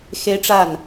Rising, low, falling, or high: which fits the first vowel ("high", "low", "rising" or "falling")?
high